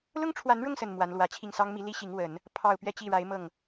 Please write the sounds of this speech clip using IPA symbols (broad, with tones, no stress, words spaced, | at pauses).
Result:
lʊ˥ŋʈ͡ʂʰwa˧˥nɻʊ˥˩ŋsə˨˩n mwa˧˥nlwä˧˥t͡ɕʰi˥˩ŋ sɑ˥ŋmi˧˥li˥ ɕi˧˥ŋwə˨˩˦n | pʰɑ˥˧ʊ̯ pɥɛ˥˧t͡ɕi˥˩ɻa˧˥ɪ̯ mɤ˥˩ŋ